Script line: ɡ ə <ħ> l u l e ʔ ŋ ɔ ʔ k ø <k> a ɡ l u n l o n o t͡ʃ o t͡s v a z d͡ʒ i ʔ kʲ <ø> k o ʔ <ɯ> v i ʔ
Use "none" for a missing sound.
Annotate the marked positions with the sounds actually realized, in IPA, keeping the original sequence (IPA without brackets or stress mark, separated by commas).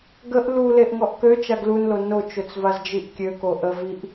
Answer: ʔ, t͡ʃ, ø, ə